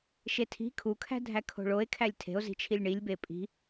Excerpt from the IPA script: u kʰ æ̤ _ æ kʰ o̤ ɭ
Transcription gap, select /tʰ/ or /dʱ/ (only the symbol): dʱ